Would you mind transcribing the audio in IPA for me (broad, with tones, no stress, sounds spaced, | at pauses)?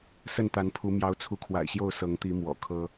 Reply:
s ə˥˨ n t̪ a˨˦ n pʰ u˨˦ m j ɑ˨˦ ʊ̯ t͡sʰ u˨˦ kʰ w a̰˨˩ ɪ̯ ɕ j o˥˨ ʊ̯ s ɤ˨˦ ŋ t̪ i˨˦ m w ɔ̰˨˩ kʰ ɤ˦